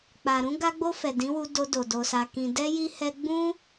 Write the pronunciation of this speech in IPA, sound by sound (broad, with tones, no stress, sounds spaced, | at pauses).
k͡p a˨ ɾ ũ˧ ɡ a˧ ɡ͡b o˧ f ɛ˨ d ĩ˨˦ w u˧ d o˧ d o˨ d o˨ s a˨ k ĩ˨ d ɛ˧ j i˧ h ɛ˧ ɡ͡b ũ˦